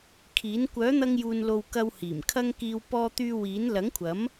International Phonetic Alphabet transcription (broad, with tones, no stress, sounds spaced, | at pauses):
kʰ iː˨˥ n kʷ œː˨˥ n̪ ɐ˧ ŋ j uː˨ n l o˨ w k ɐ˧ w h iː˨˩ m kʰ ɐ˧ ŋ k iː˧ w p ɔː˧ t̪ yː˧ w iː˨˥ n l ɐ˨˥ ŋ kʷʰ ɐ˨˥ m